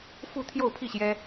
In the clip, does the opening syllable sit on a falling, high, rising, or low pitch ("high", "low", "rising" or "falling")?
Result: falling